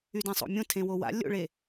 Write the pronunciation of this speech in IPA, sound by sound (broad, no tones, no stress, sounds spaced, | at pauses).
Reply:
y d ẽ sˤ o̰ mʲ õ tʰ ẽ w o w a̰ lʲ o̰ ɭ e